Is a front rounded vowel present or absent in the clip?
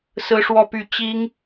present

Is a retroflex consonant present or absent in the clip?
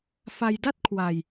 absent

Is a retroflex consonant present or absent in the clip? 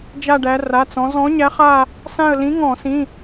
present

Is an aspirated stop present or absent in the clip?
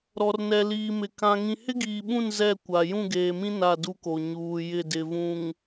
absent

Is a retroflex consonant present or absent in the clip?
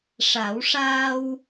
present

